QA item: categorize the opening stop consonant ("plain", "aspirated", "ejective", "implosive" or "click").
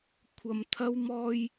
aspirated